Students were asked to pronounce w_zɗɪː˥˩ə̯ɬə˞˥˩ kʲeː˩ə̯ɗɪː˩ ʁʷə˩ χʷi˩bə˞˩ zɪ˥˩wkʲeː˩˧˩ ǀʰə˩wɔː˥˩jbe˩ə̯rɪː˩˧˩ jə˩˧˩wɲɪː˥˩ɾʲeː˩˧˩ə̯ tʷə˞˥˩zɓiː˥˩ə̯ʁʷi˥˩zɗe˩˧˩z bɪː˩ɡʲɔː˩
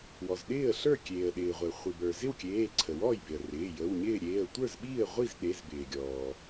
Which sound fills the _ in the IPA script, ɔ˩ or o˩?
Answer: ɔ˩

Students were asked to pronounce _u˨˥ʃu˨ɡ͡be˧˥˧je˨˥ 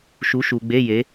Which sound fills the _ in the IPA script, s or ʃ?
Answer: ʃ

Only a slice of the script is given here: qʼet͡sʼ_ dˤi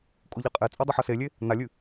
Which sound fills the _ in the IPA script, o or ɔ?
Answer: o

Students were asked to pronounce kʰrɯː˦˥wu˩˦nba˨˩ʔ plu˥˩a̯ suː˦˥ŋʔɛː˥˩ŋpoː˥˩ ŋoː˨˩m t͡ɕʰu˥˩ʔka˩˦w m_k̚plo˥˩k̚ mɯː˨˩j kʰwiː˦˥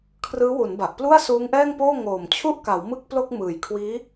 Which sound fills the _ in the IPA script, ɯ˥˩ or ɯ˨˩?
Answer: ɯ˥˩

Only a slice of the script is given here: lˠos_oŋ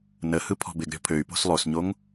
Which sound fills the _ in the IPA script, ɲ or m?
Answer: ɲ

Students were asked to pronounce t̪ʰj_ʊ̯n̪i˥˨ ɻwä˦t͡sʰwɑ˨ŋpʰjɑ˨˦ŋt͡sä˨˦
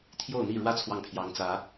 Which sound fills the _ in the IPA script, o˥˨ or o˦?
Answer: o˥˨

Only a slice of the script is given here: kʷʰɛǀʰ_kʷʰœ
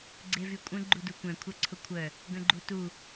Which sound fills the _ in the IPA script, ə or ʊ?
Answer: ʊ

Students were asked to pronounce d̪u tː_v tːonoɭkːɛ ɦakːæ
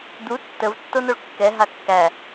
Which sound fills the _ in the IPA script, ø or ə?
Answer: ə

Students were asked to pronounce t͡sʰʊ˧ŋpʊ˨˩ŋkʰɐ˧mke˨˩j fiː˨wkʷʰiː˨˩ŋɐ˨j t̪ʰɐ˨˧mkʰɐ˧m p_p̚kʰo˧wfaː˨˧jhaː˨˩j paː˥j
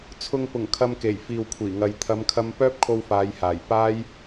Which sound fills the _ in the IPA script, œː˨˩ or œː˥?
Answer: œː˥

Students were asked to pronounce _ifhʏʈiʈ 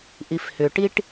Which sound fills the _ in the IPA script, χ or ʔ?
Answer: ʔ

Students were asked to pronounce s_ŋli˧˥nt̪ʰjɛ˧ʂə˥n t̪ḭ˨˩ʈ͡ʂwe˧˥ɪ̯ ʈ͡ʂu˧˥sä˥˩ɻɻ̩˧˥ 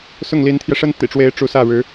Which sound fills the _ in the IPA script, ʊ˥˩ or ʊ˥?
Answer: ʊ˥˩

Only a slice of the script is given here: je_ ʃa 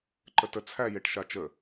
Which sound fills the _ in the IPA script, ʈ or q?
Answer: ʈ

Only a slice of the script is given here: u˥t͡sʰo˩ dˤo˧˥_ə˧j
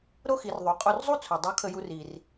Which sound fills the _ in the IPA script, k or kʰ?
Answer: kʰ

